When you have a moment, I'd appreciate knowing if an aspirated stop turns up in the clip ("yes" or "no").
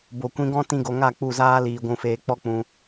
no